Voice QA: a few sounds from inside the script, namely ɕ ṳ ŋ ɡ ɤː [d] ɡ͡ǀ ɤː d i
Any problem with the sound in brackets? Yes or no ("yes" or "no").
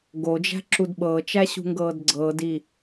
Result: no